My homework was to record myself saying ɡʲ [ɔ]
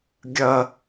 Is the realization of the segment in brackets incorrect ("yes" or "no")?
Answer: yes